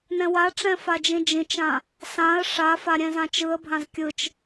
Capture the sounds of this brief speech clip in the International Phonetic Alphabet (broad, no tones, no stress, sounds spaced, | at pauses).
n ɛ̃ w a ʈ͡ʂ ɛ̃ f a d͡ʒ ĩ d͡ʒ ĩ t͡ʃ ã | s ã ə̯ ʂ a f a ɾʲ ɛ̃ z ã t͡ʃ ɯ ə̯ bʱ ã z kʲ ɯ t͡ʃ